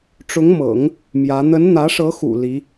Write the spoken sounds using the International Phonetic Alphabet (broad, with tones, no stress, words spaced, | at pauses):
ʈ͡ʂʊ˧˥ŋmɤ̰˨˩˦ŋ | mjä˧˥ n̪ə˧˥nn̪ä˧˥ʂɤ˧˥xṵ˨˩ li˧˥